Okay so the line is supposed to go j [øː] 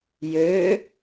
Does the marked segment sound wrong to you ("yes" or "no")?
no